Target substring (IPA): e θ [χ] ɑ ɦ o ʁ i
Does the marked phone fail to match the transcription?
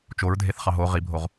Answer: no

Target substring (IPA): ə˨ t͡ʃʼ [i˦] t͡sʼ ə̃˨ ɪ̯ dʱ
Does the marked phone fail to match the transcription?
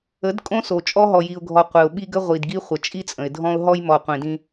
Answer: no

